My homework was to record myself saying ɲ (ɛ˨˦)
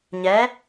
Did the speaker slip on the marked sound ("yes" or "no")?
no